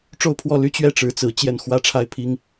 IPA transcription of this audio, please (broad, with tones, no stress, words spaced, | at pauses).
ʈ͡ʂo˥˧ʊ̯pʰwɔ˥˩ly˥ t͡ɕɥɛ˥˩ʈ͡ʂɻ̩˧˥t͡sɹ̩˧˥ t͡ɕjɛ˥˩nxwä˥ ʈ͡ʂʰa˥ɪ̯pʰi˥ŋ